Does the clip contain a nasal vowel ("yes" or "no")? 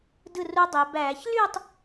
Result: no